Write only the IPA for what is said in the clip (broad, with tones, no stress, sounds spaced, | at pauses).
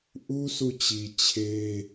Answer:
ʔ u˦ s u˦˨ t͡ɕ i˨ t͡ɕʰ e˦